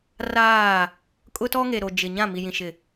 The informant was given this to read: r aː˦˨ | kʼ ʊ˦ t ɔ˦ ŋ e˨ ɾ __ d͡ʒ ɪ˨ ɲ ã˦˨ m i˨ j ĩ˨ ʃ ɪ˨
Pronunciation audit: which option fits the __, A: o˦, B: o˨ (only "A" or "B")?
B